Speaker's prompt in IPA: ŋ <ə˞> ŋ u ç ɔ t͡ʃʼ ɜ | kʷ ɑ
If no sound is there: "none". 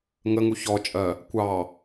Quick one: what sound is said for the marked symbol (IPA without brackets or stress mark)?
ə